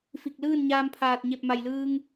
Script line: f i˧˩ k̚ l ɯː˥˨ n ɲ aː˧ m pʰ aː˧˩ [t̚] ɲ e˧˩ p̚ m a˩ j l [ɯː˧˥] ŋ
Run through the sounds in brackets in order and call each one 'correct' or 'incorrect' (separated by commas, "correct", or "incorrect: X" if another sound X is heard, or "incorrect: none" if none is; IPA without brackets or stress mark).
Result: correct, incorrect: ɯː˧